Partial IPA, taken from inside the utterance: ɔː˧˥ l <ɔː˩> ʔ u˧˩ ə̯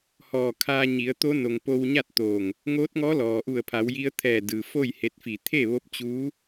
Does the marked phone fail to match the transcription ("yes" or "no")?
no